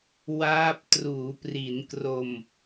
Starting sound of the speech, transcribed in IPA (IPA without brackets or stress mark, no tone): w